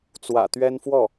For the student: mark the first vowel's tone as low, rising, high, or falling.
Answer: low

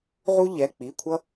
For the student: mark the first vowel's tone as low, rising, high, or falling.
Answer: high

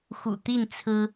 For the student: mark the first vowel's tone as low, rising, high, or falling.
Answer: low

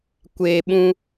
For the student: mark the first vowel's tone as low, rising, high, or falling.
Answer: low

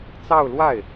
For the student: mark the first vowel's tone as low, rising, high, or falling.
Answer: falling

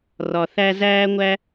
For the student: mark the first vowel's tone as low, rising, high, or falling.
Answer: low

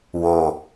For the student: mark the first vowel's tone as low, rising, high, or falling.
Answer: low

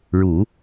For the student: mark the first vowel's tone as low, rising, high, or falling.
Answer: low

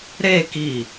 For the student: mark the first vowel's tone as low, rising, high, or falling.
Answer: falling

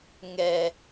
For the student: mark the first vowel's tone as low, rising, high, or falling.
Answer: high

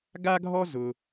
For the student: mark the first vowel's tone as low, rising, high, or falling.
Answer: high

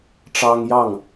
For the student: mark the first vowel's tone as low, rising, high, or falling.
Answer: high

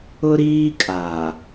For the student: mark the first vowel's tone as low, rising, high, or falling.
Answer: high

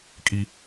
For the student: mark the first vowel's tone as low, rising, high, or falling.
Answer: high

